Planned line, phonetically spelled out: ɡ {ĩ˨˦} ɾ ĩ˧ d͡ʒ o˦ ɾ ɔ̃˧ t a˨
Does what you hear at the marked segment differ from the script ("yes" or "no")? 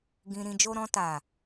yes